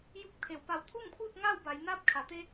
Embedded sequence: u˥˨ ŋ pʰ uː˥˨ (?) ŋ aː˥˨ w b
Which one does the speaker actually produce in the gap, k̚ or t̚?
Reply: t̚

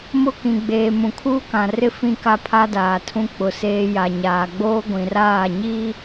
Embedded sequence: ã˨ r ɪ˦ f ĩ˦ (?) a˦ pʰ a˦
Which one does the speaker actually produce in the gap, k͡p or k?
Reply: k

